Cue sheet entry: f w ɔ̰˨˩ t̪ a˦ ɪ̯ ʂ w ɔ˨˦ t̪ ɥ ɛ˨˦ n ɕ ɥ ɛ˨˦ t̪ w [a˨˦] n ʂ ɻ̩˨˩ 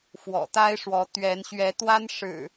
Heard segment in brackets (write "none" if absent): a˦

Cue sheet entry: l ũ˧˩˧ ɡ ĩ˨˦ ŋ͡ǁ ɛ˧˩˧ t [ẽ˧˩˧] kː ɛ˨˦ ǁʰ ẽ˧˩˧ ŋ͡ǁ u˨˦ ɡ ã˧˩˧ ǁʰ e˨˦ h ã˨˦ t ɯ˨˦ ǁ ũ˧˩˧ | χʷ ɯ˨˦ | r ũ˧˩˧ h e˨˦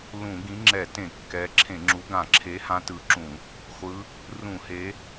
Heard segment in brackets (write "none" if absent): ẽ˧˩˧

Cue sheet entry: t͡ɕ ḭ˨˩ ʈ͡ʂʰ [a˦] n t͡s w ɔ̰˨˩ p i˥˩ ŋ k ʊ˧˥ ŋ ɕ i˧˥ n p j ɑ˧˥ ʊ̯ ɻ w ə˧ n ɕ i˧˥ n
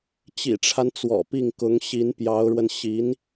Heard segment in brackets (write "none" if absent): a˦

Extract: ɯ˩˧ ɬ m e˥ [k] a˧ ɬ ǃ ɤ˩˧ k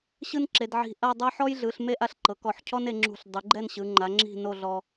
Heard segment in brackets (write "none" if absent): ʔ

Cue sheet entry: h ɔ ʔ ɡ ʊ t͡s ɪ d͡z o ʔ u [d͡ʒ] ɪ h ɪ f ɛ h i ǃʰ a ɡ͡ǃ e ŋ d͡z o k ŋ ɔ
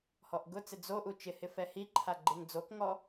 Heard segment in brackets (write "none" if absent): t͡ʃ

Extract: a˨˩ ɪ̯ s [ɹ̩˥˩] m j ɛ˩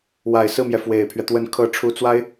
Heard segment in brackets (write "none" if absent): ɹ̩˥˩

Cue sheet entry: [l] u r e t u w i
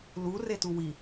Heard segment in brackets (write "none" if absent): l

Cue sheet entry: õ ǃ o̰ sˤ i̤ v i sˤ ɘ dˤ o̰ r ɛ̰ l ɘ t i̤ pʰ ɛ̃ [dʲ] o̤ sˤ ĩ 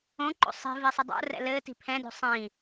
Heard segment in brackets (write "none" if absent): d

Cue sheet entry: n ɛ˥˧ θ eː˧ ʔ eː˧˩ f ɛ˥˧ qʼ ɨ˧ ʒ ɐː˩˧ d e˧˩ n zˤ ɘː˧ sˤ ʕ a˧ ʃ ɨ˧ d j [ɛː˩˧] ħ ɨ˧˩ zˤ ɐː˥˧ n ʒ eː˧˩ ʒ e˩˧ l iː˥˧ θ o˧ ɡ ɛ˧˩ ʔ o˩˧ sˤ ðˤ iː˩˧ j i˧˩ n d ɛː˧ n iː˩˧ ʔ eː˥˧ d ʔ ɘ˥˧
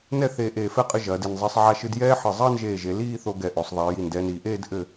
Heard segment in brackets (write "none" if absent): ɛː˥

